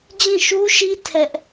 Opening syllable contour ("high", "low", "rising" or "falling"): falling